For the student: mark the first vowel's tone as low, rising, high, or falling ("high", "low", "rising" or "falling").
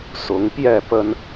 rising